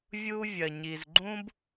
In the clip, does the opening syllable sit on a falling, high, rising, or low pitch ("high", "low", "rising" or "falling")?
high